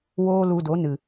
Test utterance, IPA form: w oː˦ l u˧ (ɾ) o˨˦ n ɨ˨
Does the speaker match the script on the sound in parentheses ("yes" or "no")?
no